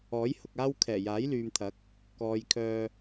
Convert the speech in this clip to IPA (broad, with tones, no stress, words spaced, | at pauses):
ɔː˨˥jhʊ˨k̚aː˥w kʰɛː˨˩jaː˨˥jlyː˨mt̪ʰɐ˨˥k̚ | kɔː˨jkʰœː˧